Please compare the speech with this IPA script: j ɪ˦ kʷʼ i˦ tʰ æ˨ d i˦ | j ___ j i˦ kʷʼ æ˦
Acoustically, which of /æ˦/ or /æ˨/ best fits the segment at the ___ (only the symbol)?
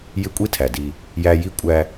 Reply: æ˦